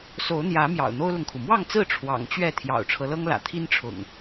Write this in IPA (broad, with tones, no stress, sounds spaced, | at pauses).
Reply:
s o˨˦ ʊ̯ n̪ j ä˨˦ m j ɑ̰˨˩ ʊ̯ n̪ o˦ ʊ̯ l ʊ˨ ŋ kʰ u˩ m w ɑ˥˨ ŋ t͡s ɹ̩˥˨ ʈ͡ʂʰ w ɑ̰˨˩ ŋ t͡ɕ ɥ ɛ˥˨ t̪ʰ j ɑ̰˨˩ ʊ̯ ʈ͡ʂʰ ɤ˦ l ɤ˦ ŋ l ä̰˨˩ t̪ʰ i˦ n ʈ͡ʂʰ ʊ̰˨˩ ŋ